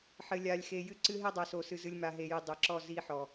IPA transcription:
ħ ɘ˨ lʲ a˨ lʲ x e˨ j ɨ˦ ǀ ɨ˦ ɦ e˦ dˤ a˨ s o˨ s ɨ˨ z ɨ˨ lʲ m a˨ ɦ e˨ j i˨ dˤ ɛ˨ ǁ ɔ˦˨ z i˦ ħ ɔ˨

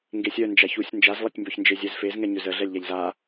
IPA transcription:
ŋ ɡ e sʲ œ n d͡ʒ a ç u sʲ n d͡ʒ a z lˠ e tʲ m b œ ç n d͡ʒ e zʲ ɛ z f e z ŋ ɛ ɲ ʏ z ə ɮ ɛ lʲ ʎ a ʎ z a

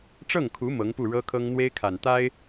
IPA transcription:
ʈ͡ʂ ɤ˥˩ ŋ kʰ u˧˥ m ɤ˧˥ ŋ p u˥˩ ɻ ɤ˥ kʰ ɤ˥ ŋ n̪ w e˥ ɪ̯ kʰ a˨˩ n t̪ a˥ ɪ̯

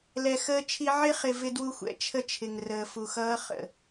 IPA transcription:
l ɛ˨ x əː˦ t͡ʃʰ i˦ ʕ ɪ˦ χ ɪ˨ v ɪ˦ d w u˦ xʷ ɛ̰˨ t͡ʃʰ ə˦ t͡ʃʰ ɪ˨ ŋ r əː˨ f u˨ x ʌː˦ χ ə̰˦˨

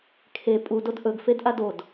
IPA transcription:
kʰ e pʼ u d o d ʔ ɵ ɡ f e d ʔ a d o d

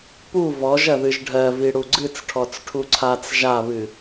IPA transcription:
p u v ɔ ʒ ɐ ð ɨ ʒ ɖʱ ɜ v i ɽ u ɡ͡ǀ ɨ t͡s ʈʰ ɔ t͡s ʈʰ u ǀʰ a t͡s ʒ a β ɨ

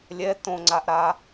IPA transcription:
lʲ ɛ t õ ŋ͡ǀ a ʔ ɾ a

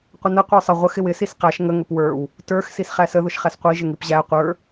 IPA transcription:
qʷ ə n ə qʷ ə˞ sˤ ə ʁʷ ə x ɪ w ɪ s i s q æ ʃ ŋ ə ŋ ə p w ə˞ w | t ə˞ x s i s χ æ s ə ð ʊ ʃ χ æ s qʷ i ʒ ɪ ŋ i p ʑ æ qʷ ə˞

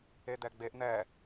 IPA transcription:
e d̪ ɛ ɡ͡b e ʔ n̪ ɛ

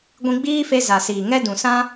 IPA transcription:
ɡʷ ĩ˧ ɡ͡b iː˦ f e˧ z a˨ s iː˨ ŋ ɛ˦ d ũ˨ s ã˦

